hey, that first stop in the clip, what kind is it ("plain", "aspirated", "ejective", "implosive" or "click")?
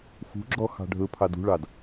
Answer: click